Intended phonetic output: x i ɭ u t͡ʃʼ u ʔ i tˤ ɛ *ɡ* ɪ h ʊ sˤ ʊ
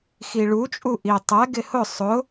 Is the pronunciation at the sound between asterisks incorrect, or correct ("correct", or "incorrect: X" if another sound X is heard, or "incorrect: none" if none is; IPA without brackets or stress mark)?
correct